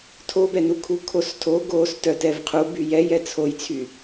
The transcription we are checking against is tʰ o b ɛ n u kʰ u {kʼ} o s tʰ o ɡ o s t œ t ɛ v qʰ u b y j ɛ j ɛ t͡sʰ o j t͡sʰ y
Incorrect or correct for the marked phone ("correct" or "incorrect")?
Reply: incorrect